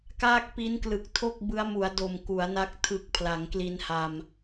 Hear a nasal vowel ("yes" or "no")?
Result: no